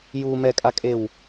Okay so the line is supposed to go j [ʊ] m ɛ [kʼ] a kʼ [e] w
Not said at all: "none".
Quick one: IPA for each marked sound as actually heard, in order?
u, kʼ, e

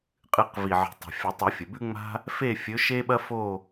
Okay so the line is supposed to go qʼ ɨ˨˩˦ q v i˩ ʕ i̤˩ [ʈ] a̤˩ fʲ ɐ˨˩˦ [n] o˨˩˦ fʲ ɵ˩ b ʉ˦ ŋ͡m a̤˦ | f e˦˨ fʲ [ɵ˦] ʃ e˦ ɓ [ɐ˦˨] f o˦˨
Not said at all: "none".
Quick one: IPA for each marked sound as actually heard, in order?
tˤ, tˤ, ɵ˨˦, ɐ˦

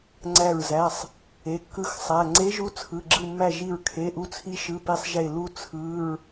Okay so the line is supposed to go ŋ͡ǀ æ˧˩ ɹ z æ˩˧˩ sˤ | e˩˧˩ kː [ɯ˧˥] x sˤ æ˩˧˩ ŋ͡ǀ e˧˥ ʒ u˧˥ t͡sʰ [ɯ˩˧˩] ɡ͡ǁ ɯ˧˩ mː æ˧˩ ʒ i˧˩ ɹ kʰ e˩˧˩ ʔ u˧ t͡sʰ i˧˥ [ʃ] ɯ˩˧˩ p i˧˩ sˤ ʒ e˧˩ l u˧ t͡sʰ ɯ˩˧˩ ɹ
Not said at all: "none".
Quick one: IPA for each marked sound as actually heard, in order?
ɯ˧˥, ɯ˩˧˩, ʃ

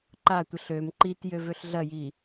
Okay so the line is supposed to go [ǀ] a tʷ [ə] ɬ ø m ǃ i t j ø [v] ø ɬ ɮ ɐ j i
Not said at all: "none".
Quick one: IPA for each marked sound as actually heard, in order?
ǃ, ə, v

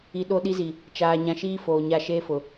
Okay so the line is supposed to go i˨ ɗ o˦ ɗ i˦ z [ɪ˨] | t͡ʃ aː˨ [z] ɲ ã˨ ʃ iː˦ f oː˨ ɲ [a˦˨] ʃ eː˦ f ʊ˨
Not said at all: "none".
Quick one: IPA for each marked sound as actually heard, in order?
i˨, none, a˦˨

